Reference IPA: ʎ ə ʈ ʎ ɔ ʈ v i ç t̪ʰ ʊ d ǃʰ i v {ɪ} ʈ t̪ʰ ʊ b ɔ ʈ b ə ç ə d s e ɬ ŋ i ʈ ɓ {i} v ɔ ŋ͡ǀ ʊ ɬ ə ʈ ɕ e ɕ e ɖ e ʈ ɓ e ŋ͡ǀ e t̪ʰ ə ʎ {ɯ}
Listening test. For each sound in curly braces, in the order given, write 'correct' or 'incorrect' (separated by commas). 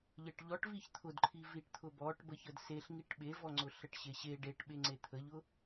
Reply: incorrect, incorrect, incorrect